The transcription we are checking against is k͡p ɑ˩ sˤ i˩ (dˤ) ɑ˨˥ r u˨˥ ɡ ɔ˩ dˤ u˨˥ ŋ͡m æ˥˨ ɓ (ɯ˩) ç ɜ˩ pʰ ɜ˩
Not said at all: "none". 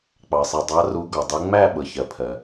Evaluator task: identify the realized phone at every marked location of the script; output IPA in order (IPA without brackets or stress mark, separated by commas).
dˤ, ɤ˩